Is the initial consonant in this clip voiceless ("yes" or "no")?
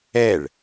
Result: no